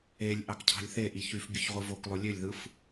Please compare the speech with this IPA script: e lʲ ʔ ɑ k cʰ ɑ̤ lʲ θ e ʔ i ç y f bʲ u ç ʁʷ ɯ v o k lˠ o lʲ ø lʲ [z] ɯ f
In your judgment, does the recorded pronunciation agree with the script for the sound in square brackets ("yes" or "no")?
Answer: no